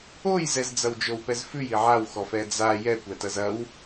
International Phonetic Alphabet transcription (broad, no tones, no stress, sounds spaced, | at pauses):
o j z ɛ z d͡z ɐ w d͡ʒ o w p ɛ z f ʉ j i ʕ a w x ɔ f ɛ d͡z a j ɛ kʷ ɛ t ɐ z ɐ w